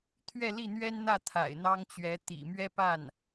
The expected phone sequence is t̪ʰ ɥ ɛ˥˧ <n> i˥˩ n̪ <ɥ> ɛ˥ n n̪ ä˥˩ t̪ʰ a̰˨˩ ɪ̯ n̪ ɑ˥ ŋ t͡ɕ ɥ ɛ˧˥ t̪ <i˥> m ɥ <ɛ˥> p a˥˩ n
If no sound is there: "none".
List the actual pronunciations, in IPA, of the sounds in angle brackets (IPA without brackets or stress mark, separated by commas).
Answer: l, ɥ, ḭ˨˩, ɛ˥